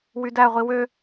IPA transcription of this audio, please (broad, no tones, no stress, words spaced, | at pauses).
wydæʁʷi wø